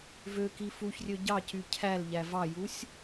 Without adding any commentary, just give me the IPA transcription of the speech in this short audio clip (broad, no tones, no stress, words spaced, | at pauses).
vøki fuçrʲø ɟɑcy cʰæl ʎævɑjusʲ